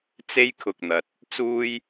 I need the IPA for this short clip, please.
t͡s e˥ j kʰ ʊ˨ k̚ n̪ ɐ˨ t̚ | t͡s uː˥ j

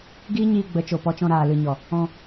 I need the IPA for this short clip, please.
ɡ iː˦ ɲ iː˧ ɡ͡b ə˨˦ t͡ʃ o˨ p ɔ˧ t͡ʃ ɔ̃˧ ɾ aː˨ l ɨ˨ ɲ ɔ˨ | ɔ̃˧

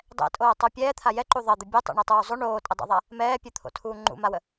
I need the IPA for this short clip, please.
dˤ ɛ̰ tʼ oː tˤ u pʲ ɛː t̪ʰ a j ɛ ǃ u ðˤ ɜ d̪ ə bʲ ɛ tˤ o̰ ɳ ɛ tˤ uː zˤ o ɳ oː tʼ ə dˤ ɛ̰ ðˤ a | m ɛː pʲ u t̪ʰ o̰ tʰ uː ŋ͡ǃ ṵ m a w ə

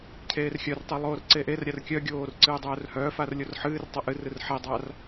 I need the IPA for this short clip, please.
cʰ eː r xʲ œ r tˤ ɨ lˠ oː r ǀ e ʔ e r ɾʲ a r kʲ œ ɡʲ oː r ǀ ɨː dˤ œː r h œː f a r lʲ o r ħ ɨː r tˤ a ʔ ɨ r ɨ r ħ e dˤ a r

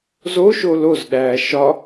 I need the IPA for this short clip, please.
z o ʃ o l o z ɗ æː ʃ ɒ

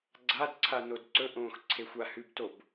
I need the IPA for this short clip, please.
ɡ͡ǀ a d ǀʰ a n o d ǀ ɵ ʔ õː x ǀʰ e xʷ a h ʉ b t o b

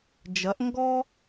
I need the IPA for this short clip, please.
d͡ʒ ɐ˨˦ ʔ ŋ ɡ ɔ˦

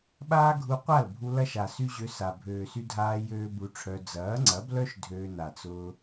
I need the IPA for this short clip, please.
ɓ aː˦ ɡʱ u˧ qʷ a˦˨ l bʱ u˧ l ɐ˦ ʃ a˨ s y˦ ʑ ø˧ s a˨ bʱ øː˨ s y˧ dʱ aː˧ j øː˦ b u˧ ʈ͡ʂʰ œ˧ d͡z ɐː˨˦ ŋ͡ǀ ɐ˨˦ b l œ˦ ʃ dʱ øː˧ n a˨ t͡s ʊː˧

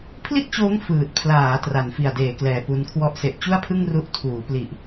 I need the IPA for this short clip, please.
pʰ l i˥˩ t̚ t͡ɕ oː˦˥ ŋ f ɯː˨˩ t̚ pʰ l aː˩˦ t r a˩˦ n f i˨˩ a̯ d eː˩˦ k l ɛː˨˩ p u˦˥ n kʰ w ɔ˥˩ ʔ s e˨˩ ʔ t͡ɕ u˥˩ a̯ pʰ ɯ˥˩ ŋ r u˦˥ ʔ tʰ uː˩˦ p l i˨˩ ʔ

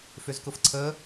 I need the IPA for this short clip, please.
f ʏ z k ʊ f ǀʰ ə

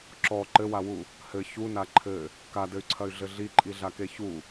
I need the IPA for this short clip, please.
ǁ ɔ ǃ ɘ w a w u | h ɘ ç u n a ǃʰ ɘ | k a d ɘ y̯ ǀʰ ɐ y̯ ɮ ɘ ɮ i ǃʼ i ɮ a k e ç u

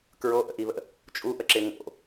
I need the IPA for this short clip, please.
k ɹ o ʔ ə̰ ʔ i β ə̰ | t͡ʃʼ u ʔ ə ǁ ɪ ŋ o̰

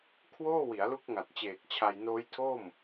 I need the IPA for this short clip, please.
kʰ w oː˥˩ w i˩˦ a̯ l u˦˥ k̚ ŋ a˨˩ t̚ t͡ɕ eː˨˩ k̚ t͡ɕʰ a˧ j n oː˦˥ j tʰ o˥˩ m

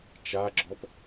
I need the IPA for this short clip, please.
t͡ʃ a ɡ͡ǁ ɔ p

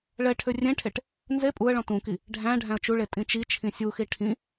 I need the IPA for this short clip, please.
ɭ ɛ ʈʰ ʏ rʲ ẽ ʈʰ e ʈ | n z e pʼ u ə̯ ɭ ɔ̃ t ũ k i | ɖʱ æ̃ ɖʱ æ̃ ə̯ t͡ʃ u ɭ e tʼ ĩ t͡ʃ i t͡ʃʰ ĩ sʲ u x i ʈʰ ĩ

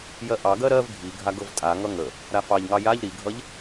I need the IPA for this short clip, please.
j ɜ ʔ ɑ ɡ ɜ ɾ ɜ v ɡʱ i ɡʱ a ɡ ɤ v tʼ a ŋ ʌ ŋ ə | ɾ a f ɑ ʎ ŋ ɑ j a ʎ ɾ i ɡʱ ʌ ʎ

